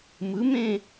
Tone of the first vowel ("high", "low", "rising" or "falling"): rising